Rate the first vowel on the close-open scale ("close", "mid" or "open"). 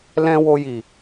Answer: mid